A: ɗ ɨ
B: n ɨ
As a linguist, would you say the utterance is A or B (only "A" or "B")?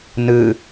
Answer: B